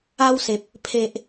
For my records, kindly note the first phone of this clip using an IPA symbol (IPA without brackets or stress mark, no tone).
a